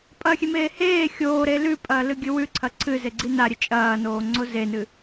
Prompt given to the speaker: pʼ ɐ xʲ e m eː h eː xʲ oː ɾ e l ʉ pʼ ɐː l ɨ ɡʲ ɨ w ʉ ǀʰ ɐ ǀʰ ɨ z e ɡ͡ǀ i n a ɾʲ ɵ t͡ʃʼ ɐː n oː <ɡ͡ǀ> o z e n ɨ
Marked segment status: incorrect: ŋ͡ǀ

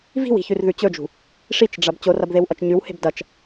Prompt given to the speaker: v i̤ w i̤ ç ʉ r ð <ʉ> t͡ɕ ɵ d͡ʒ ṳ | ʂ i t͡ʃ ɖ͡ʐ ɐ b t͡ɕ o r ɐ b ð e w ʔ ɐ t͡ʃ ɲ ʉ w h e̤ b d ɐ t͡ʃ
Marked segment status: correct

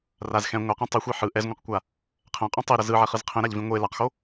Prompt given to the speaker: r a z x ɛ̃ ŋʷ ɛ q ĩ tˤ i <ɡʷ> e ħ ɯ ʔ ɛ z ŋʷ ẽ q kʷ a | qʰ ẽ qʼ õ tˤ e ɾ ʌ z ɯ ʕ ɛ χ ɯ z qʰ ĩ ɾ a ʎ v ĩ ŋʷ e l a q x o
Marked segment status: incorrect: xʷ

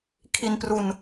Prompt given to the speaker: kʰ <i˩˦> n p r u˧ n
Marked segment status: incorrect: i˧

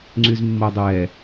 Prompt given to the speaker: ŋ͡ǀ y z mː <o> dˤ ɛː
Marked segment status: correct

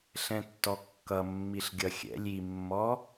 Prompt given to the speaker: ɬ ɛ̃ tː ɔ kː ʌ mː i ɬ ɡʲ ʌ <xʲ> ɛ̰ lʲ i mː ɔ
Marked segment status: correct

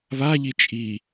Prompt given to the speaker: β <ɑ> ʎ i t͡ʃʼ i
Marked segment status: incorrect: a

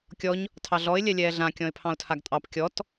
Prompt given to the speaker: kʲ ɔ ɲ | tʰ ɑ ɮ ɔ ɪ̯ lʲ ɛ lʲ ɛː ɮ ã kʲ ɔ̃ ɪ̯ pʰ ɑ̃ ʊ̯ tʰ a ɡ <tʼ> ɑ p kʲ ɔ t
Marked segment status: correct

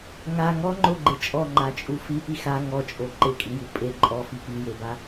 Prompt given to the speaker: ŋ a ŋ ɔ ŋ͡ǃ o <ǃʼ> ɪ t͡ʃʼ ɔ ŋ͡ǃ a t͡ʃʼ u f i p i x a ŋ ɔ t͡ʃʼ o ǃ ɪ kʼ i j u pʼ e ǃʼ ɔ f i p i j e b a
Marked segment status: incorrect: ɡ͡ǃ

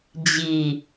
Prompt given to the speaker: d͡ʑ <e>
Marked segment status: incorrect: i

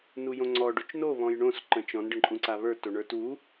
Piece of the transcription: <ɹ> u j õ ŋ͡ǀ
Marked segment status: incorrect: n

